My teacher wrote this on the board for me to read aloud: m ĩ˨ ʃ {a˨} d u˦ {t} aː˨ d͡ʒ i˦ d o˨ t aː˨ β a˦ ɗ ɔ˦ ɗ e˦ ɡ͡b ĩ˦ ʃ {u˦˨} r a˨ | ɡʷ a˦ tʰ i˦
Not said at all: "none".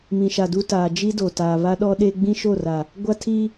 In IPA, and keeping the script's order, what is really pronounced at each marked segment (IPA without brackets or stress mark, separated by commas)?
a˨, t, o˦˨